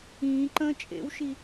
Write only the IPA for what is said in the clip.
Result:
ĩː ǃ ə̃ː t͡ʃʼ ḛ w ʃ i

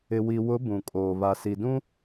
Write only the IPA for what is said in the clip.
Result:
ɪ˨ w i˨ w ʊ˨˦ b ũ˨ kʼ oː˨ β a˨ s i˨ d ũ˦

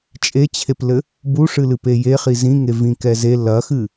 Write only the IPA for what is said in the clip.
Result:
t͡ʃʼ e t͡ɕʰ e p l ɘ | b u ʂ ɨ l ɨ p e j e χ i z ĩ ŋ e v ĩ k ɛ z e l ɐ x ɨ

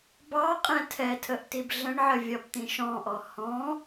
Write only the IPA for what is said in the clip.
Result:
b ɑ qʼ ɛ̃ tʰ ɛ tʰ ə ʔ t i b ɮ ə̃ ɳ ʕ ə vʲ ɒ b t̪ ĩ ʃ ɔ̃ ʔ ɔ h ɔ̃

